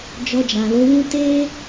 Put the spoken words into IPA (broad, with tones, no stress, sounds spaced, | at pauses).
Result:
d͡ʒ ɔ˧ d͡ʒ ã˨ l o˨˦ w ũ˦ t e˦